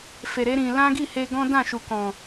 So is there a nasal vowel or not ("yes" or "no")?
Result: yes